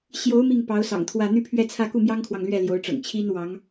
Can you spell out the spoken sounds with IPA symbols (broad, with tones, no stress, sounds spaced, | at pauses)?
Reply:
ɕ j o˧˥ ʊ̯ m i˥˩ ŋ p ɑ˧˥ ʊ̯ s ɑ̰˨˩ ŋ t̪ʰ w ä˥˧ n̪ y˥˧ pʰ ɥ ɛ˥˧ t͡sʰ ä˥˧ k u˥˩ m j ɑ˥ ŋ kʰ w ɑ˨ ŋ l ɥ ɛ˥˩ l j o˧˥ ʊ̯ ʈ͡ʂ ɤ̰˨˩ ŋ t͡ɕʰ i˥ n w ɑ˧˥ ŋ